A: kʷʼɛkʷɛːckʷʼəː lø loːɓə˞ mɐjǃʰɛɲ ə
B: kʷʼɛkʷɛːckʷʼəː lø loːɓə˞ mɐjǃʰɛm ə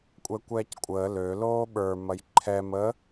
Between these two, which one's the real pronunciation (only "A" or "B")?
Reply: B